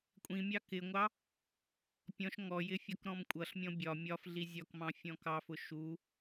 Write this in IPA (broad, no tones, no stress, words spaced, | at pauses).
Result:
kʷʼĩmʲɑ kɪŋʷɑ | pʲɔ̃ʃ ŋɔjɪ fʲɒkɾɔ̃mkʷʼʌɬmʲɔ̃ bʲɒ mʲɒf ɮizʲɒkmɑ̃ fʲɔ̃kɑfʊ ʃu